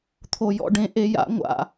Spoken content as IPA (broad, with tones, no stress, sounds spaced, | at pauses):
t̪ʰ o˨˩ j ɔ̰˦˨ ɖ ẽ˨˦ ʔ e˨˦ j a̰˨˦ ŋʷ a̰˨˩